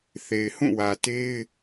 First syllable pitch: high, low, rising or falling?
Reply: low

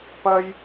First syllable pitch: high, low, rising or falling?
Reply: high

